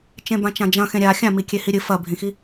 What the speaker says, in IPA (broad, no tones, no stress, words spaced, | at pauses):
t͡ʃẽbãt͡ʃãd͡ʒɐ̃ xẽɾʲa xʲãmi kʲehiɾʲɨ fɐbʱĩxi